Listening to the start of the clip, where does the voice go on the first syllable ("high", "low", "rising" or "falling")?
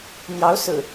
rising